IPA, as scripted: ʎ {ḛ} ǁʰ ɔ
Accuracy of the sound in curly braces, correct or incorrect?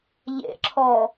correct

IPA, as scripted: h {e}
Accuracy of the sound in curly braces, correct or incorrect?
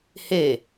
correct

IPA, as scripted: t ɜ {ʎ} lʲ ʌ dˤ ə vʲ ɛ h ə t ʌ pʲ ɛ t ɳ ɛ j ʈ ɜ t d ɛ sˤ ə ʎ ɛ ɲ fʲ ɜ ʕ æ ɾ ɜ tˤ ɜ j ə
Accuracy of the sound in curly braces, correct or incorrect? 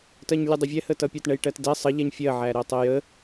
incorrect: ɲ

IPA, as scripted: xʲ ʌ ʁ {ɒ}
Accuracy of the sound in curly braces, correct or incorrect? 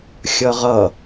incorrect: ʌ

